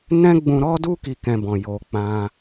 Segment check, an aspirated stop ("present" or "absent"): absent